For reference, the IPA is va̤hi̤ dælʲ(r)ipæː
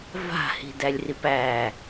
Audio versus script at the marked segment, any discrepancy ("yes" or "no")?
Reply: no